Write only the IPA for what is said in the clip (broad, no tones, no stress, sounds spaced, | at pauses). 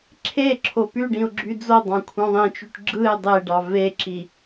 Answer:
ǁʰ e ǁʰ o p y ɖ ĩ ʊ̯ ɡ͡ǁ y d͡z o dˤ ɑ̃ kʷʰ ɑ̃ ðˤ ĩ t͡ʃ y ʈ ɡ͡ǁ ɯ ɪ̯ dˤ e ɖ ɑ v e ǁ i